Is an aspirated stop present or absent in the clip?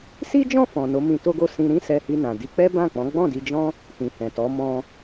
absent